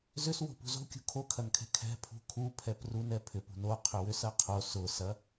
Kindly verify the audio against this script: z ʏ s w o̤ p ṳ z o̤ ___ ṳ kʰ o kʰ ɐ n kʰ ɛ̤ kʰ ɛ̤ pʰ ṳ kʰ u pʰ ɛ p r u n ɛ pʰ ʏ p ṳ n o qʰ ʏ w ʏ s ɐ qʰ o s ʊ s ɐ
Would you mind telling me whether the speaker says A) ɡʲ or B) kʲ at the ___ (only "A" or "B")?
B